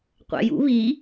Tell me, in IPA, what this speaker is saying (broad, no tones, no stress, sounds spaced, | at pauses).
qʷ æ̰ j ṵ β i